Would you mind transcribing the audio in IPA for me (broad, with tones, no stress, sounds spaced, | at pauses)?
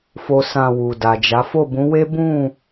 f o˦ s ã˦˨ w u˨ d a˨ d͡ʒ a˨˦ f o˦˨ b ũ˨˦ w e˦ b ũ˦˨